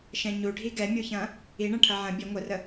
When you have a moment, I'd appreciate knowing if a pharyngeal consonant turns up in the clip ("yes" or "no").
yes